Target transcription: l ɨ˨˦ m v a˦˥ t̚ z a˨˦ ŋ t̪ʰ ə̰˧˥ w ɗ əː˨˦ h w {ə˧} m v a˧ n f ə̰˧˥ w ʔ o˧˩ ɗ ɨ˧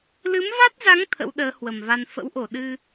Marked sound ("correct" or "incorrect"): incorrect